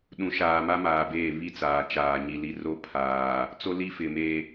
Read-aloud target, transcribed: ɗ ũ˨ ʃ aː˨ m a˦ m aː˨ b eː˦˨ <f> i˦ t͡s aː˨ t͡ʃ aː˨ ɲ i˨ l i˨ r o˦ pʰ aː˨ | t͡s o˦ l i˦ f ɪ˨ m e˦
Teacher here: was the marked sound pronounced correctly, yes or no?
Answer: no